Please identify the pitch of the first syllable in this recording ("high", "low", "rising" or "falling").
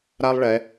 high